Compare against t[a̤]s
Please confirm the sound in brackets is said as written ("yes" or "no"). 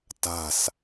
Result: yes